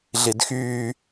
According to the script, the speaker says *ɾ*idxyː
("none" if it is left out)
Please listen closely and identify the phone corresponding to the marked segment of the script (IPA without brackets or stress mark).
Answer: ɮ